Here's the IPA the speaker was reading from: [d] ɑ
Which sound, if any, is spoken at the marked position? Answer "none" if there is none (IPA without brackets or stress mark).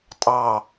tʼ